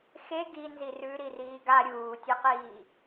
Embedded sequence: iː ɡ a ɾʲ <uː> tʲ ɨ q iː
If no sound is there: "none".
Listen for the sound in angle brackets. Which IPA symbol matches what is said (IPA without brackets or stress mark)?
uː